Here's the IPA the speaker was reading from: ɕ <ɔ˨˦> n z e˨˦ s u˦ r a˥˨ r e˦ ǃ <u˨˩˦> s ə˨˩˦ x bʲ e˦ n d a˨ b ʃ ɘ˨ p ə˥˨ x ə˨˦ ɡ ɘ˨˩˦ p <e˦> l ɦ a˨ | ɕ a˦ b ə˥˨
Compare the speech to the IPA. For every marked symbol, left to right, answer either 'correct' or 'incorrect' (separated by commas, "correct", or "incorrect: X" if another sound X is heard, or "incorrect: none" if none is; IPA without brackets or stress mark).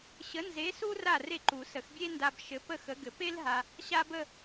incorrect: ə˨˦, correct, correct